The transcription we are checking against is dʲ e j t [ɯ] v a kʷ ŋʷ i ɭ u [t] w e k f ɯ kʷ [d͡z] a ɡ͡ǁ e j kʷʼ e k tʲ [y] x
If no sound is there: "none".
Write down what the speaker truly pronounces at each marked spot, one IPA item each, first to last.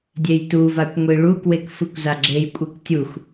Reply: u, k, z, u

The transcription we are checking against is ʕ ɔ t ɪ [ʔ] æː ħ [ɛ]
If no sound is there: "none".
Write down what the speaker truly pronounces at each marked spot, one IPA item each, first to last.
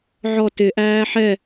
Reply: ʔ, ɛ

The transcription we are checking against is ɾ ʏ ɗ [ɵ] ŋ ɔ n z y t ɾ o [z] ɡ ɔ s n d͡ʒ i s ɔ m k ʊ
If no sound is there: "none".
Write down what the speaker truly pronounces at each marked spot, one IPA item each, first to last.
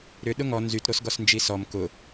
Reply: ʊ, s

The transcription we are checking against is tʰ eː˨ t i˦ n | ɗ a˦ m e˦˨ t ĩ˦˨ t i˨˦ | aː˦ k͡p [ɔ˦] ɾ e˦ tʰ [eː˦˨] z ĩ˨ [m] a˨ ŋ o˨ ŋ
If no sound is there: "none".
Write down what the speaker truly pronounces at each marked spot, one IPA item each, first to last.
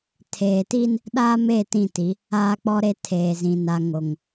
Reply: ɔ˦, eː˨, n

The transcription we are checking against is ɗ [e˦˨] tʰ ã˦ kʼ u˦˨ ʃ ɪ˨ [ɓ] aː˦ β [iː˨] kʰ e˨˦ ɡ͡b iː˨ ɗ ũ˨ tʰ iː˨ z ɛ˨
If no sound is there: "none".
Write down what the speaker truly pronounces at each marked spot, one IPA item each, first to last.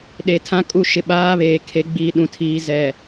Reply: e˨, ɓ, eː˨

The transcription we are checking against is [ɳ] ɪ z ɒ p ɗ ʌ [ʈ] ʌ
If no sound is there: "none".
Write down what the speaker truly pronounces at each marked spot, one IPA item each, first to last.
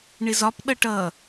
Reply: ɳ, ʈ

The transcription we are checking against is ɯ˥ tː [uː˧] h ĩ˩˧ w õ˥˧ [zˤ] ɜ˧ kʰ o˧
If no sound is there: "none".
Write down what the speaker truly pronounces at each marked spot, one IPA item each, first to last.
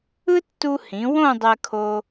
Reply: u˧, dˤ

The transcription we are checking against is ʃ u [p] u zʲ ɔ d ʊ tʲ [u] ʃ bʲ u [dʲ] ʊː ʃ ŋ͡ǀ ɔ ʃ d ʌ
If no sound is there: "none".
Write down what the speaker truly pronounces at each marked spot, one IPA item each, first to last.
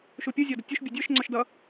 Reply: pʲ, u, dʲ

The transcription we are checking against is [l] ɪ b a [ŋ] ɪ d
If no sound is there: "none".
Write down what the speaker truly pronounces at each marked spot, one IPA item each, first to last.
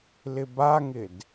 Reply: l, ŋ

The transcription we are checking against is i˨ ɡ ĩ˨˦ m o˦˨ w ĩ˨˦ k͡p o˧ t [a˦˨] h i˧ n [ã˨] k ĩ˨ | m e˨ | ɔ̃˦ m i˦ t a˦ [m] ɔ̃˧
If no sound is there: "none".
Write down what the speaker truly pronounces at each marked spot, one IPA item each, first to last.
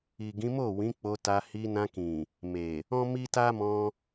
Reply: a˧, ã˧, m

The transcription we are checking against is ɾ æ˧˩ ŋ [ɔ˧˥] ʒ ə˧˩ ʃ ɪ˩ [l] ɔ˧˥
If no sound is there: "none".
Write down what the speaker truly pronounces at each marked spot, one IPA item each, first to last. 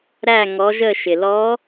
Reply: ɔ˩˧, l

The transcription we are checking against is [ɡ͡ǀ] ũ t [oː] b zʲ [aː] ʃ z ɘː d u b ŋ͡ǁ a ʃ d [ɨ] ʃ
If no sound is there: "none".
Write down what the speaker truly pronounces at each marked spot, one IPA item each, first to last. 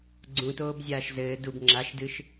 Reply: ɡ͡ǀ, oː, aː, ɨ

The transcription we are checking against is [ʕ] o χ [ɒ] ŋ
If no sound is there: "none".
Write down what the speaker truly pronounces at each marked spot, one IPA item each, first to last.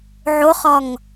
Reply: ʕ, ɒ

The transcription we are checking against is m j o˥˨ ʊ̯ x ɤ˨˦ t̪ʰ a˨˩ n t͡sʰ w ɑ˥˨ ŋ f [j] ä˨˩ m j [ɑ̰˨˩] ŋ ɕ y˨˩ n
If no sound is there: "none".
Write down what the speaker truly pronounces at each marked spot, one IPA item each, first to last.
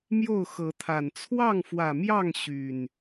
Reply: w, ɑ˥˨

